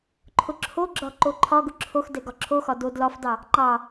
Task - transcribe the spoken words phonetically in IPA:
ǃʰ ʊ ǁʰ o ɡ͡ǁ ɒ ǃ o ǃʰ ɒ ɡ ʊ ǁʰ o x d ɛ ɡ ɒ ǁʰ o x ɒ d o d l ɒ f d ɑ | ŋ͡ǃ ɑ

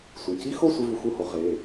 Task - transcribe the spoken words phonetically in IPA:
sʷ i˩˧˩ c i˥ x o˥˧ sʷ e˥ v u˧ x u˥˧ h o˩˥ ʁ e˩˧˩

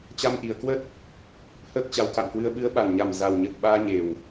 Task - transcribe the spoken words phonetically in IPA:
t͡ɕ a˧ m ʔ i˨˩ ə̯ k w ə˦˥ t̚ | h əː˦˥ k̚ t͡ɕ a˨˦ w k a̰˧˨ m k w ɨ˧ ə̯ ɓ ɨ˨˦ ə̯ ɓ a˨˩ n ɲ a˨˩ m z a˨˩ w ɲ ə˨˩ t̚ ɓ aː˧ ɲ e˨˩ w

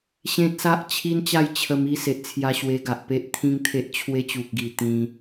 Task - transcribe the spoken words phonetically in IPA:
ɕ ẽ˦ t̚ s a˦ ʔ t͡ɕʰ i˦ n t͡ɕ a˥˧ j t͡ɕʰ ə˧ m i˥˧ s e˨ ʔ t͡sʰ j a˧ ɕ w e˧ ɡ a˨ ʔ p e˦ ʔ t̪ʰ ĩ˦ ŋ t̪ʰ e˦ ʔ t͡ɕʰ w e˧ t͡ɕ u˨ k̚ ɡ i˨˩ t̪ ĩ˧

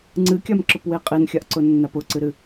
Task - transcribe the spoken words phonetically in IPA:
ŋ͡ǀ ɨ kʲ a m ǁ ʊ p w e qʼ e n xʲ a ʔ ǀ ʊ nː a p ʊ ǀ ɨ ɾ ɨ

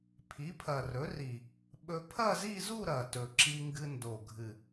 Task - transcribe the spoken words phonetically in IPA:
pʰ i˩˥ pʰ ɐ˨˩ r ɵ˩˥ r i˨˩ | ɓ ɵ˧ pʰ ɐ˥˧ z i˥˧ z u˥˧ ɾ ɐ˨˩ t ɵ˨˩ ǁ i˧ ŋ ɡ ɨ˧ n d o˨˩ ɡʱ ɨ˨˩

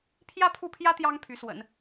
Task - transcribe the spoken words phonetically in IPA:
pʰ j ä˥ pʰ u˥˩ pʰ j ä˥ t̪ j ɑ˥ ŋ pʰ y˧˥ s w ə̰˨˩˦ n

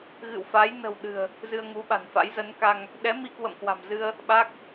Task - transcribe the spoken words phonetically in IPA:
ɣ ɨ̰˧˨ w f a˨˦ j n ə̤˨˩ w ɗ ɨ̤˨˩ ə̯ | z ɨ˧ ə̯ ŋ u˨˦ ɓ a̤˨˩ n f a̰˧˥ j z ə˨˦ n k a˧ ŋ | ɗ ɛ˨˦ m i˧ k w ə̰˧˨ m k w a̤˨˩ m z ɨ˧ ə̯ | ɓ a˦˥ k̚

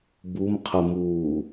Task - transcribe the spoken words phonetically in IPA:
b u m qʰ ə m uː

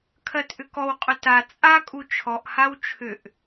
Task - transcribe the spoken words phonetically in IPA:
kʰ ɜ t ʔ ʏ k ɔ w qʼ ʏ t a t͡sʼ a kʼ u t͡ʃʰ ɔ ʔ h a w t͡ʃʰ ʏ ʔ

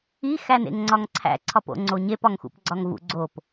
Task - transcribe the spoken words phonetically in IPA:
i x æ n ḛ ŋ ŋ͡ǀ ɒ ŋ ǀʰ æ̰ ǀʰ ɒ p o̰ ŋ͡ǀ o ɲ e p ɒ ŋ x ṵ p ɡ͡ǀ ɒ ŋ v ṵ ɡ͡ǀ o p

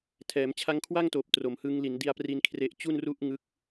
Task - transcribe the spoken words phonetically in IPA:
tʰ ɛː˩˦ m t͡ɕʰ a˦˥ ŋ kʰ w a˥˩ ŋ t oː˨˩ p̚ t r o˨˩ m h ɯ˦˥ ŋ l i˩˦ n d i˧ a̯ p r i˧ n kʰ r e˦˥ ʔ t͡ɕ u˥˩ n r u˥˩ ʔ ŋ ɯ˦˥ k̚

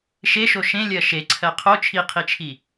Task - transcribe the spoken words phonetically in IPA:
ʃ e ʃ o ʃ ẽ lʲ ɜ ʃ e ǀʰ ɜ qʰ o t͡ʃʰ i qʰ i t͡ʃʰ i

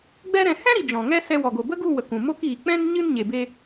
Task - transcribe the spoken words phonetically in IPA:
ɡ͡b ɛ˦ ɾ ɛ̃˧ h ɛ̃˦ ɾ i˨ d͡ʒ ɔ̃˨ ŋ ɛ˦ s ɛ˧ w ɔ˨ ɡ o˨ b ə˦ ɡ u˦˨ w ə˨ k ũ˨ m o˦ k iː˨ k͡p ɛ̃˦ n ɲ ɨ˦ n ɲ e˨ b e˧

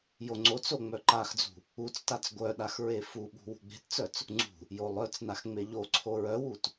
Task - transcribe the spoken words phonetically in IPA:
j o ŋ͡ǀ o t͡s o ŋ͡m œ ǃ a x d͡z ṳ | u t͡s t a t͡s ɡʷ œ ɗ a x ɹ e f u ɓ ṳ w ṳ ɡ͡b e̤ t t͡s œ t͡s | ŋ͡ǀ ṳ | j o lˠ œ t͡s n a x ŋ͡m e ʎ o ǀʰ o ɹ œ w u t

